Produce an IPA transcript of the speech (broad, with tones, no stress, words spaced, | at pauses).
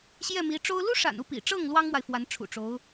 ɕjɛ˥˩mi˧˥ʈ͡ʂo˥ʊ̯ lu˥ʂa̰˨˩nu˥˩ pḭ˨˩ʈ͡ʂɤ˥˩ŋ lwɑ˥ŋmwa˨ɪ̯fwa˧˥n ʈ͡ʂʰṵ˨˩ʈ͡ʂo˧˥ʊ̯